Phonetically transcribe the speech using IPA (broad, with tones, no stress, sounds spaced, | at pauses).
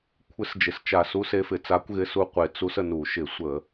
kʷʰ ɪ˧˥ s d͡ʒ ɪ˩˧ s t͡ʃ a˧˩˧ s u˧˥ s e˧˥ f ɪ˨˩ t͡s a˧˥ kʷ ɣ ɪ˧˥ s u˧˥ qʷ e˩˧ t͡s u˧˥ s ə˨˩ n u˧˩˧ ʃ ɪ˧˩˧ sʷ ə˧˩˧